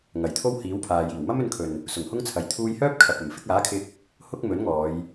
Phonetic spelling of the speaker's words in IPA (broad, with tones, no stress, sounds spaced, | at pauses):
ŋ ɐ˨˩ j t̪ʰ o˥ w h iː˨˥ w pʰ aː˨ j iː˨˩ w m ɐ˥ m ɵ˧ n kʰ ɵ˨ n | s ʊ˨˩ ŋ h ʊ˥ ŋ t͡sʰ ɐ˨ j t̪ʰ uː˧ j h œː˥ p̚ kʰ ɐ˨ p̚ ɐ˨˩ m f ɪ˧ k̚ aː˨˥ kʰ ɪ˧ k̚ | h ʊ˥ k̚ m ɵ˨˥ n ŋ ɔː˨˧ j